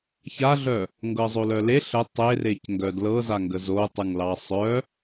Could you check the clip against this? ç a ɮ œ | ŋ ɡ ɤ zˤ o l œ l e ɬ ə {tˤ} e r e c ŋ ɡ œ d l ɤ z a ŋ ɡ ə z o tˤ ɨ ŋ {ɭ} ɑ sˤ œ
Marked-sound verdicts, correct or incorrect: correct, incorrect

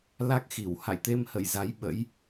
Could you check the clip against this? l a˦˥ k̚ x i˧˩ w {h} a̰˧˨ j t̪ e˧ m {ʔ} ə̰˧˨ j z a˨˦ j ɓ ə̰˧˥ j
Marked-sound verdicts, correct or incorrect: correct, incorrect

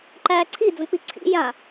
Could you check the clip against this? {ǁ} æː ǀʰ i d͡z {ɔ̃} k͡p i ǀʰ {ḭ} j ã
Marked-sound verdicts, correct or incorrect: incorrect, incorrect, correct

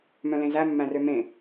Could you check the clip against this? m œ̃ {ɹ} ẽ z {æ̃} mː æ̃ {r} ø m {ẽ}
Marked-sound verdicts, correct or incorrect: incorrect, incorrect, correct, correct

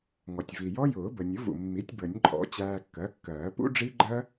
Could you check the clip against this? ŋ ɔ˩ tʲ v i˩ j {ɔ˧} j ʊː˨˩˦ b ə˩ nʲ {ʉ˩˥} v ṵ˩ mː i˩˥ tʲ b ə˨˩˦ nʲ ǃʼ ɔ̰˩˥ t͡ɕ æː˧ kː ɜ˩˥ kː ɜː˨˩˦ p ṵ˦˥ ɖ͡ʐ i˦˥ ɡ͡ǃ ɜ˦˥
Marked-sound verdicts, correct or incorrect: incorrect, incorrect

